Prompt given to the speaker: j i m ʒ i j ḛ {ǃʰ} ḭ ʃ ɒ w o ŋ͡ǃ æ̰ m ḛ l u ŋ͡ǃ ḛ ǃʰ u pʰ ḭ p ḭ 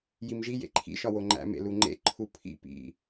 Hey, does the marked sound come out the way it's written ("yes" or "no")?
yes